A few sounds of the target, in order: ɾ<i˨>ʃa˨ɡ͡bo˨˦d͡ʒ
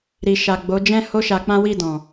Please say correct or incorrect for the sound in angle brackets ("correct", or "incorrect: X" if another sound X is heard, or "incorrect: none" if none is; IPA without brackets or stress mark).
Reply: correct